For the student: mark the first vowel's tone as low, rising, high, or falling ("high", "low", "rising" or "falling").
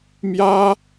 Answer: high